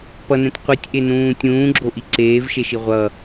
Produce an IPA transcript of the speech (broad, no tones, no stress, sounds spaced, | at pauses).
p ʌ n ɛ̃ t qʷ i tʲ ʔ e n ũː tʲ ũː ɡ͡ǁ o ʔ i ǀ eː v ʃ e ʃ i ʁʷ ʌ